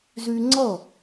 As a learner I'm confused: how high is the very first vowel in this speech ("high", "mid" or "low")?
high